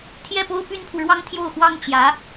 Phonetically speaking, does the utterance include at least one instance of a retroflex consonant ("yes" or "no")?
yes